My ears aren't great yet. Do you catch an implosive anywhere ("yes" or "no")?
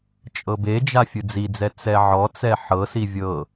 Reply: no